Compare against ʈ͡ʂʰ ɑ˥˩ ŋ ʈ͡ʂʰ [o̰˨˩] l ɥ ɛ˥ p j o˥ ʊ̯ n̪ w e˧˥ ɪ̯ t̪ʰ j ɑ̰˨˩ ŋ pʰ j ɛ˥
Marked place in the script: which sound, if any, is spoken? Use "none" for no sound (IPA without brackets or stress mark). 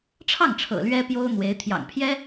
ɤ̰˨˩